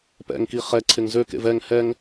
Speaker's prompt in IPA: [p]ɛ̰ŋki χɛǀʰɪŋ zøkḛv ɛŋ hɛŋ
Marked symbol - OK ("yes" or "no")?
yes